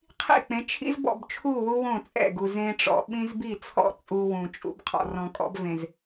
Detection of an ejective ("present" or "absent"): present